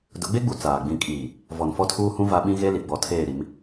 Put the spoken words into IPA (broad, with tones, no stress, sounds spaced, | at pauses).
d ʊ˨˦ ɡ͡b e˦ ɡ͡b u˨ t͡s aː˨ ɡ͡b ĩ˨ kʼ iː˨ | v ɔ˨ n f ɔ˦ tʰ uː˦ h ũ˦ v a˦ ɓ ĩ˦ ɣ e˦ l i˨ ɡ͡b ɔ˨ tʰ eː˦˨ ɾ i˨˦ m